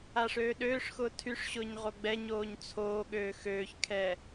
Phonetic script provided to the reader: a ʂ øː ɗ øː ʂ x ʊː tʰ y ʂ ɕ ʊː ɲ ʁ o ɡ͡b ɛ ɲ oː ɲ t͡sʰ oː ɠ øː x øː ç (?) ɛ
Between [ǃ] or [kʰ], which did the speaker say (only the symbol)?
kʰ